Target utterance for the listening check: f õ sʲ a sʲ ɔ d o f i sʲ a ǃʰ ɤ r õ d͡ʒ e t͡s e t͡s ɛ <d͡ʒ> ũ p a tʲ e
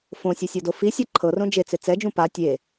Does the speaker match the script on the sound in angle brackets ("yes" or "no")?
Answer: yes